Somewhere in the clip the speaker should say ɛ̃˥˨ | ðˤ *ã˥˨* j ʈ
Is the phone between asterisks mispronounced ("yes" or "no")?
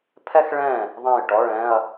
no